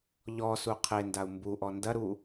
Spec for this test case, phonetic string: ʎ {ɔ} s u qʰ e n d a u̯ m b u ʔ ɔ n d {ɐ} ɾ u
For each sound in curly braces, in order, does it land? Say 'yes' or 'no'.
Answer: yes, yes

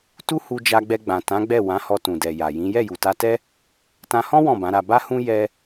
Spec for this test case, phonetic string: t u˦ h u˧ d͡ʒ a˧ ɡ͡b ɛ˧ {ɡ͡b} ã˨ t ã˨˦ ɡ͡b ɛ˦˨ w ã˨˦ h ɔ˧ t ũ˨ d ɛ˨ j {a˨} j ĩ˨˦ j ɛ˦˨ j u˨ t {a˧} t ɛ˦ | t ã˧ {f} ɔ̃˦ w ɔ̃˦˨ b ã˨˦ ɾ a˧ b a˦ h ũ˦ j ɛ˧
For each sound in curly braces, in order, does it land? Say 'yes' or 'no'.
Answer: yes, yes, yes, no

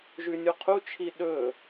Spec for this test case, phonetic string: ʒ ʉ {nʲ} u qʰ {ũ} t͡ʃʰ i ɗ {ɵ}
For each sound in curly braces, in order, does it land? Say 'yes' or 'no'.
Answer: yes, no, yes

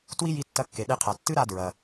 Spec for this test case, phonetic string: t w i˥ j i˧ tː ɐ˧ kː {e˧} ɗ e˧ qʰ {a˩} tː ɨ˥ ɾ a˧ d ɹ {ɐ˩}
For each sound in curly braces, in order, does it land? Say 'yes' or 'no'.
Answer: no, yes, yes

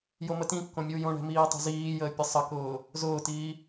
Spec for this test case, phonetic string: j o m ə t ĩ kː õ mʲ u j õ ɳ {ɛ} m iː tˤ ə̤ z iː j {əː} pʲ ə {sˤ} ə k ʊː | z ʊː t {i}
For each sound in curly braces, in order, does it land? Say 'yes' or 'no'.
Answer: no, yes, yes, no

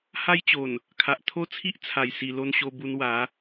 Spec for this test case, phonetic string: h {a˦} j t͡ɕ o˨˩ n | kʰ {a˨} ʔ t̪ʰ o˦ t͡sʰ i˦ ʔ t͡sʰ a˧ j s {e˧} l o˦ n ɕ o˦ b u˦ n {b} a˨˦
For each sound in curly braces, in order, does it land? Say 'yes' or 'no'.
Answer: yes, yes, no, no

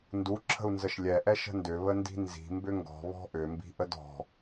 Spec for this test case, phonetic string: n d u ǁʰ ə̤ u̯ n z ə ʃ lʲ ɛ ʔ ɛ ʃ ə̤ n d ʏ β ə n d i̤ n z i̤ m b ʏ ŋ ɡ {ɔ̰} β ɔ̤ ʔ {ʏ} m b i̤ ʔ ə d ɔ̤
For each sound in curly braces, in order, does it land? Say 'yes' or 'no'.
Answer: no, yes

